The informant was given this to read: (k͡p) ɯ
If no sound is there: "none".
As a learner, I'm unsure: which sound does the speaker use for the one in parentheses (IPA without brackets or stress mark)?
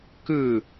k